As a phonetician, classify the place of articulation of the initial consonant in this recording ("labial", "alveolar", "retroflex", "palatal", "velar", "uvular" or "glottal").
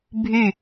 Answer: labial